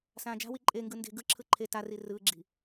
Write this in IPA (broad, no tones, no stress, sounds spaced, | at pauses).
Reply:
s ãː d͡ʒ a̤ w i ǃʼ e ŋ ɡ ɯ n d e̤ ɡ ɯ ǁʰ ɯ ǃʰ e t a r i r ɯː ɡ͡ǁ i̤